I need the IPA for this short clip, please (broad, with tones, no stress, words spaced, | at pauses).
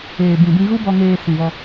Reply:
eː˨ bĩ˨bĩ˧ ɣu˦bɔ˧ŋeː˧ sĩ˨vɔ˧